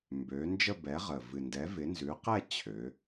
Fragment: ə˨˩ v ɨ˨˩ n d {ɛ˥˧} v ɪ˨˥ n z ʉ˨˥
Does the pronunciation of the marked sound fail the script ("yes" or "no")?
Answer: yes